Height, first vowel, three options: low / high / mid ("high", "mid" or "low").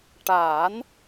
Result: low